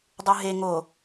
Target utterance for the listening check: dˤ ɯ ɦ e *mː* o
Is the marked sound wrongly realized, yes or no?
yes